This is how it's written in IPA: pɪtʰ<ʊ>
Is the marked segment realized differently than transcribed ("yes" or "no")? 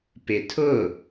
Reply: no